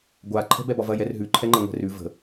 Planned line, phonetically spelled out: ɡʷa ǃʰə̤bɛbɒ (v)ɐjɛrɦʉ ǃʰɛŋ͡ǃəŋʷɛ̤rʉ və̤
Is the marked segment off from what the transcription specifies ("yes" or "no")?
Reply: no